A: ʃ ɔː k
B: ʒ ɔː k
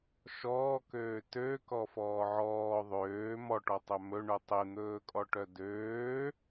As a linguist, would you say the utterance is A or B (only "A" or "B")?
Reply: A